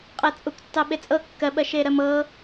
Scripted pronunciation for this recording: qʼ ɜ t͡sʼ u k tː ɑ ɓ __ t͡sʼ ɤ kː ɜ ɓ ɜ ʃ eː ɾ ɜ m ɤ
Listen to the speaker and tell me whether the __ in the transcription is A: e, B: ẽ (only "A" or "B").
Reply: A